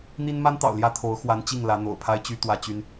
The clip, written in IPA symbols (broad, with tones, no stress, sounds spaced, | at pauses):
n̪ i˥ n m a˥ n t̪ ɑ̰˨˩ ʊ̯ l j ä˥˩ t̪ʰ o˧˥ ʊ̯ x w a˧˥ n t͡ɕ i˥˩ ŋ l ä˧˥ n̪ o̰˨˩ ʊ̯ pʰ a˥ ɪ̯ t͡ɕ y˥ t̪ w ä˥ t͡ɕ y˥ n